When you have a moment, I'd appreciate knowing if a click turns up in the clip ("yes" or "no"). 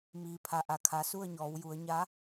no